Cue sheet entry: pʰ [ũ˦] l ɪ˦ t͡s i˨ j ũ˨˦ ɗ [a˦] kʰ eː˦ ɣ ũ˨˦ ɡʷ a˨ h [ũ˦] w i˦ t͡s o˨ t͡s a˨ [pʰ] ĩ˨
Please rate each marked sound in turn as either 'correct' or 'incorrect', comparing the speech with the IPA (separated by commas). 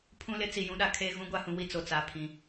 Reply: correct, incorrect, incorrect, correct